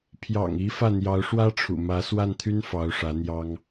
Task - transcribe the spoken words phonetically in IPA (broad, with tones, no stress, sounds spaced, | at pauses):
pʰ j ɑ̰˨˩ ŋ i˧˥ f ä˥˩ n̪ j ɑ˧˥ ʊ̯ ʂ w ä˥ ʈ͡ʂʰ ṵ˨˩ m ä˧˥ s w a˥˩ n t̪ʰ y˥ n f ɑ˧˥ ʊ̯ ʂ ä˧˥ n̪ j ɑ˥ ŋ